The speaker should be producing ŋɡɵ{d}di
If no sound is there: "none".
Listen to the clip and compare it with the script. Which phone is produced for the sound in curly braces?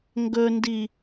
n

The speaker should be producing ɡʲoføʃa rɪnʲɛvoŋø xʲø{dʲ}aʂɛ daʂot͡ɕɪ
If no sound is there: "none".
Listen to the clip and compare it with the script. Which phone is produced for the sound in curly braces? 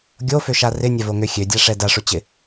dʲ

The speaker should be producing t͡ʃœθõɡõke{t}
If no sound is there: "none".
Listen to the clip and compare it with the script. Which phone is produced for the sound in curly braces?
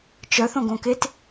t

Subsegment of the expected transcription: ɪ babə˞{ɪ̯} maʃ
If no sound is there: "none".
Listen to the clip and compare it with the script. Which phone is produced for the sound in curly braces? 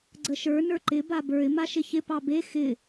ɪ̯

